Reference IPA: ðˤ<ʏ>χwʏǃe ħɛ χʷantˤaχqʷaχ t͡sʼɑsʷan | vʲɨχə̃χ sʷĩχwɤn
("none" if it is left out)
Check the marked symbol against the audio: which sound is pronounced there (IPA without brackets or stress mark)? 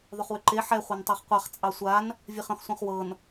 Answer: ʏ